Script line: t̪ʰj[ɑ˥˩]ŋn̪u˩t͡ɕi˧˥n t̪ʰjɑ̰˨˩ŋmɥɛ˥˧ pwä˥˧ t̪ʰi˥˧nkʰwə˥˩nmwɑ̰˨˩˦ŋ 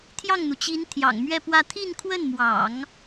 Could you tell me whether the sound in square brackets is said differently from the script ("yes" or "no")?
no